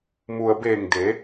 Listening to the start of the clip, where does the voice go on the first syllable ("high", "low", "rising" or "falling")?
low